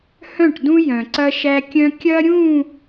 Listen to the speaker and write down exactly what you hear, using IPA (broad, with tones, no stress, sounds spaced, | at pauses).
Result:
h œ̃˦˨ ʈ d ũ˦ j œ̃˨ ǀ ɐ˦ ʃ æ˦ kʲ œ̃˦ kʲ ɐ˦ ɾʲ ũ˦˨